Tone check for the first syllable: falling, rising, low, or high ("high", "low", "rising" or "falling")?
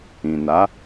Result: low